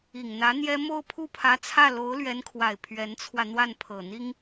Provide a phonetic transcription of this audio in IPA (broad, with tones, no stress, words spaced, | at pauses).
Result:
i˨˩ŋn̪ä˧˥n̪jɛ˥ mo˥˧ʊ̯pʰu˥˩pʰä˧˥t͡sʰä˥˩ lo˧˥ʊ̯lɥɛ˧˥nkʰwa˨˩ɪ̯ pʰɥɛ˧˥nt͡sʰwä˧ n̪wa˥˩npʰɤ˨˩ n̪i˥ŋ